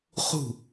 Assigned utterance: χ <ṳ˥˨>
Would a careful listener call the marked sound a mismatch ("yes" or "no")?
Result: no